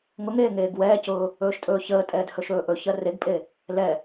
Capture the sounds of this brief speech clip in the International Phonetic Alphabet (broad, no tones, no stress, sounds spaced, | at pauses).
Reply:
ŋ ʊ ŋ eː ŋ eː ɡ w ɛː c ʊː | ɵː ʃ tʼ ɵː ç əː tʼ ɛː d h ɵ ʃ ɵː ʔ ɵ ç ɜ r e ɡ pʼ e | l ɛ